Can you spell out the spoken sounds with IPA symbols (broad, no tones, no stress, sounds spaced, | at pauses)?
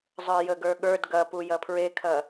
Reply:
zˤ ə˞ j ə ɡ ə˞ ɠ ə˞ d ɡ ɐ p u j ɐ pʰ ɹ e kʰ ɐ